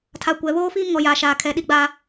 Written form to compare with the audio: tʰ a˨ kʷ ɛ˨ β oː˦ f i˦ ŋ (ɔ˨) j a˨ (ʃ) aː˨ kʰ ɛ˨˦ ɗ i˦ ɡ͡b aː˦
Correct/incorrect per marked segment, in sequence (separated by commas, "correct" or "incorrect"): correct, correct